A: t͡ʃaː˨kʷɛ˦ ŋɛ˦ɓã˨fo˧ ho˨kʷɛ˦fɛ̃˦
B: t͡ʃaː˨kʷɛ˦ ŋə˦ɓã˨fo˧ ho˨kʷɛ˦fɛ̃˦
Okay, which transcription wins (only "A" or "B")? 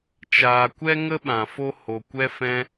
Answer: B